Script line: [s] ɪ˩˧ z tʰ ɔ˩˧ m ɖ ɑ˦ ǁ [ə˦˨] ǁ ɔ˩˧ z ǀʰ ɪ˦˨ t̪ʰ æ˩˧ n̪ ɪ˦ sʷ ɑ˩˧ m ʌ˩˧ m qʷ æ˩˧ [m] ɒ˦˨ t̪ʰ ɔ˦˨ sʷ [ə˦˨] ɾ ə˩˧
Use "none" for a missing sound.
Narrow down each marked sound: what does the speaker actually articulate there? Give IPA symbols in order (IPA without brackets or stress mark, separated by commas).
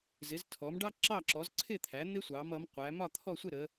z, ɑ˦˨, m, ɪ˦˨